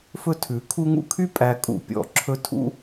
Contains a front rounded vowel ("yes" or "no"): yes